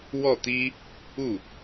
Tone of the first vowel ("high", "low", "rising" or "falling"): falling